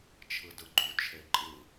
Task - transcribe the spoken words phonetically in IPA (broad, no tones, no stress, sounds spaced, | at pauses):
t͡ʃʰ ɯ d ɯ ɡ͡ǃ u t͡ʃʰ e ǃʼ ɯ